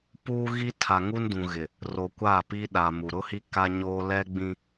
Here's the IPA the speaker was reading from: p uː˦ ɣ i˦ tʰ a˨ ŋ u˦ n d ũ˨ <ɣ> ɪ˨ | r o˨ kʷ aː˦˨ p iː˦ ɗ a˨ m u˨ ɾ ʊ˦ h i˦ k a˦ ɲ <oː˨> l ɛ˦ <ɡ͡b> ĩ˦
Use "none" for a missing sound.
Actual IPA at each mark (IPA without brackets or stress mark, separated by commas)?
ɣ, oː˦, ɡ͡b